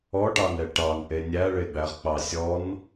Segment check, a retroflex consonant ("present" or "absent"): present